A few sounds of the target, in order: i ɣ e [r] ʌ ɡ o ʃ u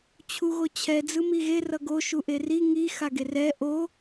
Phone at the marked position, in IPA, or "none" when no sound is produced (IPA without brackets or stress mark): r